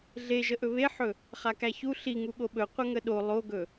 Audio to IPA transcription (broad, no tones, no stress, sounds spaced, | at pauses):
ɮ e ʒ ə ʔ ɵ β e ħ ɵ | χ a k æ ç u ɬ i ŋ u ɠ o ɓ ɵ qʷ ə ŋ ə ɗ o lˠ o ɡ ɵ